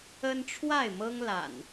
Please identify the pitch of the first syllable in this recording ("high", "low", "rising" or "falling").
high